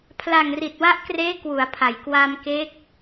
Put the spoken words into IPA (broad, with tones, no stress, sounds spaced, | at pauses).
pʰ l a˨˩ ŋ r i˨˩ t̚ w a˦˥ ʔ k r eː˦˥ k w u˩˦ a̯ pʰ a˩˦ j k w a˧ m k e˦˥ k̚